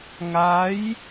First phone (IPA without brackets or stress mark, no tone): ŋ